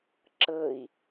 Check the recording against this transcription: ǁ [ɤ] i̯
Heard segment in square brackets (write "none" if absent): ɤ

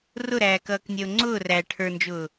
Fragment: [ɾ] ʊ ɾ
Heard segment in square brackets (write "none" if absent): r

